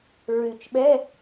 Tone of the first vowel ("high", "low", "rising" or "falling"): low